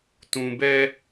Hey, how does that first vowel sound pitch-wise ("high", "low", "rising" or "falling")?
low